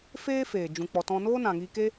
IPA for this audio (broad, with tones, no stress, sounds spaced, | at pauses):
f eː˦ f eː˨ d͡ʒ ũ˨ k͡p ɔ˨ t ɔ̃˧ n oː˦ n ã˨ ŋ iː˧ k e˦